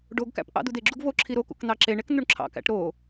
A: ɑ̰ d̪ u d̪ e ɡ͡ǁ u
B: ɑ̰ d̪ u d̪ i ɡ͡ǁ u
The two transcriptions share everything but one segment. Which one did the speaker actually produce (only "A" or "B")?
A